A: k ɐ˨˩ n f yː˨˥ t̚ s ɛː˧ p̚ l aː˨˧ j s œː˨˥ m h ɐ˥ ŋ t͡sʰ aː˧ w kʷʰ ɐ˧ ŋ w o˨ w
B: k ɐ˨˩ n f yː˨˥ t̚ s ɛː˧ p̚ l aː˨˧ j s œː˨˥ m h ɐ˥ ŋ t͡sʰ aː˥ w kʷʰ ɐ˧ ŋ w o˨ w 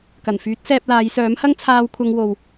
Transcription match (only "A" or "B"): A